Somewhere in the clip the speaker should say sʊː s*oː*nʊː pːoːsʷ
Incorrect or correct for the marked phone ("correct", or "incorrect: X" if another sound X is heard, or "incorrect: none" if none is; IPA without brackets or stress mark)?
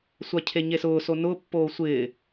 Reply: incorrect: o